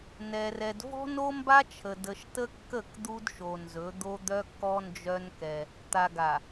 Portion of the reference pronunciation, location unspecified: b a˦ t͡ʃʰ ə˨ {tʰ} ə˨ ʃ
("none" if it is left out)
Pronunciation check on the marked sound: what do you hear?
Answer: d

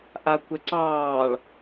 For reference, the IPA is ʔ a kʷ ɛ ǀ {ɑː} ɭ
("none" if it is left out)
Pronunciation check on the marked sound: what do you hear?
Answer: ɑː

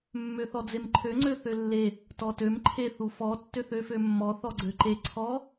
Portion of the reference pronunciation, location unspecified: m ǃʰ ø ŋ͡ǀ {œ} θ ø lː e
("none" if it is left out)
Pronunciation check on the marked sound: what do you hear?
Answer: ø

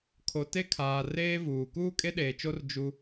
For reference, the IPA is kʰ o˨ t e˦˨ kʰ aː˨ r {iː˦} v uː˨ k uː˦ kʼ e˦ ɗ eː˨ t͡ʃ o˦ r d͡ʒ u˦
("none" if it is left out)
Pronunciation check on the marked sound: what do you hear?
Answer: eː˦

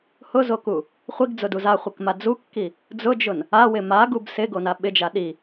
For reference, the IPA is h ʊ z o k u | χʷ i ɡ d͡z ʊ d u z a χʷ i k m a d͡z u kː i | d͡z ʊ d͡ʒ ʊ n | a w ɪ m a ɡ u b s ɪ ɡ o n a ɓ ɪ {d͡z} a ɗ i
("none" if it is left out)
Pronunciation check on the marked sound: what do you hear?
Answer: d͡ʒ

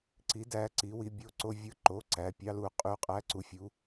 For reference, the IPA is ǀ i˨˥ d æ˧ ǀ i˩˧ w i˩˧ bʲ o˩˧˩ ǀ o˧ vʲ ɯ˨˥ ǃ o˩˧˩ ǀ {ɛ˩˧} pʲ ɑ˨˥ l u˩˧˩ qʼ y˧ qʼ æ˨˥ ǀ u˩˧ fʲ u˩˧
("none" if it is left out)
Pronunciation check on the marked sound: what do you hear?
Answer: æ˩˧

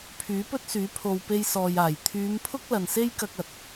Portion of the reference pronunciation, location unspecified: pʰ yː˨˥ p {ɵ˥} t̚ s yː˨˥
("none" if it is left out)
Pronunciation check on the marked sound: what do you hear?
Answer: ɵ˥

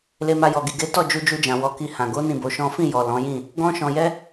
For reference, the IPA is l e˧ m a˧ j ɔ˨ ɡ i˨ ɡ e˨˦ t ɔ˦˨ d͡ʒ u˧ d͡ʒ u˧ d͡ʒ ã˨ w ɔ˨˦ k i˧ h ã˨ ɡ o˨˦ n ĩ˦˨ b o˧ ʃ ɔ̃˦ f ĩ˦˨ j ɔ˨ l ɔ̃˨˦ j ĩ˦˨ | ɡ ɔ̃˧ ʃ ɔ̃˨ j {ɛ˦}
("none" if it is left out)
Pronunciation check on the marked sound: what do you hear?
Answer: ɛ˧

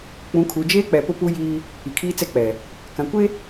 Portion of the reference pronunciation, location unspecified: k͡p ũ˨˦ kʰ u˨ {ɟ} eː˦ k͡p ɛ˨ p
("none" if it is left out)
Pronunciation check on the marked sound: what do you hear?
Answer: d͡ʒ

